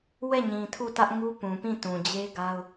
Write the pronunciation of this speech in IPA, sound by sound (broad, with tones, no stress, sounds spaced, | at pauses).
w ɛ˦˨ ɲ ĩ˨ tʰ u˦˨ t ä˦ ʔ ŋ u˦ p ũ˨ p ĩ˦˨ t ũ˨ d͡ʑ e˦ ɡ a˦ ʊ̯